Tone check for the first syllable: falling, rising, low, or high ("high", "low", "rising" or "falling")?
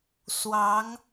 rising